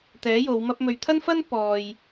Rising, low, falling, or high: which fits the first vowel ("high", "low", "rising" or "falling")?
rising